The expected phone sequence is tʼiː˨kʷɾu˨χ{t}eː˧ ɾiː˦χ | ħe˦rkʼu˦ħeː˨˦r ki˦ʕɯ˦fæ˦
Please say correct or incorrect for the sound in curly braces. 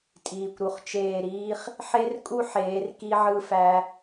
incorrect: t͡ʃ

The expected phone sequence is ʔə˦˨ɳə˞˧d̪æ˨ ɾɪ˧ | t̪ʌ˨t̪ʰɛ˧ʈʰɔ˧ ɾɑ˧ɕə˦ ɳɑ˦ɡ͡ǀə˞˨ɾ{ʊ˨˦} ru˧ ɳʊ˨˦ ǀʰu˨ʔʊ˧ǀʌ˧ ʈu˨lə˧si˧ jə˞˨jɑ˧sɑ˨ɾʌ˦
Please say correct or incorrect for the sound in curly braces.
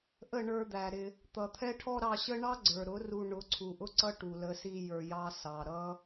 correct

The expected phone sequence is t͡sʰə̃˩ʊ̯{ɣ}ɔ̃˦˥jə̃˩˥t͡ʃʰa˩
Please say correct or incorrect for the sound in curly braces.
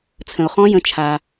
incorrect: χ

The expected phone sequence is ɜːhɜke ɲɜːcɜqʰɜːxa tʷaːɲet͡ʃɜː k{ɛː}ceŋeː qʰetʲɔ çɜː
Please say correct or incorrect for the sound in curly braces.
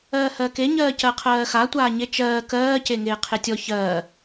incorrect: ɜː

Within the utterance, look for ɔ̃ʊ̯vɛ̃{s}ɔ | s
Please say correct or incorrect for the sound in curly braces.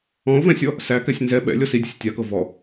incorrect: sʲ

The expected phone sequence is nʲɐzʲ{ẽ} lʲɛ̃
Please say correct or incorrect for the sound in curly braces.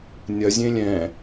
correct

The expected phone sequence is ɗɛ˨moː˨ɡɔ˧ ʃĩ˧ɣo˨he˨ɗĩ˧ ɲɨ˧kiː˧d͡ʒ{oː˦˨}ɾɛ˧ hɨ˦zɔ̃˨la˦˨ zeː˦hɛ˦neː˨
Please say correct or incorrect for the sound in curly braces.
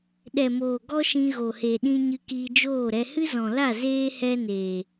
correct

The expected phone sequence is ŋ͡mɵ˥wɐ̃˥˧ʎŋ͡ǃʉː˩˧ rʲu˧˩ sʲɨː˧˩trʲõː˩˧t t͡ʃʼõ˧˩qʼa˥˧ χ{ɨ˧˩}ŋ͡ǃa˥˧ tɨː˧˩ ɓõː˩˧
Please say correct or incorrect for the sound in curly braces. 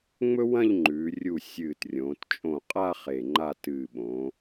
incorrect: e˧˩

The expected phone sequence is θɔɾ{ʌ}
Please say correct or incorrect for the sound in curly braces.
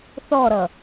correct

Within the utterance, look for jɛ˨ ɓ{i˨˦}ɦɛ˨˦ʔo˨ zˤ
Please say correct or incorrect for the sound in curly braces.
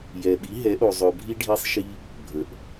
correct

